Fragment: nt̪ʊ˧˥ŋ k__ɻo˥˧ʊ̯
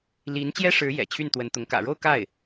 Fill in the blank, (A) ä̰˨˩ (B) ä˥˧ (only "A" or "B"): A